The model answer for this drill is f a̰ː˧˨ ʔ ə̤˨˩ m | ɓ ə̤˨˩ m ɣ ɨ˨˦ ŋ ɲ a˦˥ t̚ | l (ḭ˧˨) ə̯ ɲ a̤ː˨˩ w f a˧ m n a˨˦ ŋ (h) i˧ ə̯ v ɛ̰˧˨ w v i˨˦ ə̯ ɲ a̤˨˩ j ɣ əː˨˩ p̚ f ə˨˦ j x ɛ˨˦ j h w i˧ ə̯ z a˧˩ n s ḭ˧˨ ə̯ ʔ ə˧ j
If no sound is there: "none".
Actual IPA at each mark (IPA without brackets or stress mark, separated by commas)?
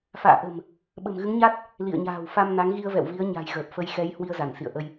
ḭ˧˨, ɣ